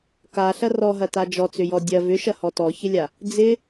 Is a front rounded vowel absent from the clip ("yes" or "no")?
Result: no